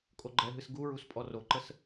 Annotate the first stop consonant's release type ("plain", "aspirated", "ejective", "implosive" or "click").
ejective